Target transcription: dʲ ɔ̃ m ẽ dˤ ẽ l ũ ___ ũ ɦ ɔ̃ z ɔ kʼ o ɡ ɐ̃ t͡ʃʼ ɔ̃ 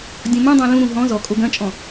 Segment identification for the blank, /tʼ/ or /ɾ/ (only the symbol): ɾ